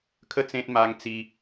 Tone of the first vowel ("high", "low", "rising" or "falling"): high